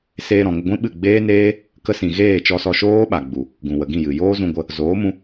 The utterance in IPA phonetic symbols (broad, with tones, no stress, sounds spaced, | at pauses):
s eː˧ ɾ ɔ̃˨ ŋ ə˧ ɡʷ ĩ˦ ɓ ɨ˦˨ ɡ͡b eː˦ n eː˦ | k ə˧ s ĩ˨ ɣ eː˦˨ t͡ʃ ɔ˧ s ɔ˧ ʃ oː˦ ɓ a˨ ɡ͡b u˨ | ɡ ũ˨ w ə˨ ɡ ĩ˦˨ j ɨ˨ j oː˦ z ũ˧ ɡʷ ə˧ | z oː˨˦ m ũ˧